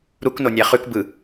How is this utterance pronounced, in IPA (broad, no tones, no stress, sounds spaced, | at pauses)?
ɾ u k n o nʲ æ χ ʉ k b ɯ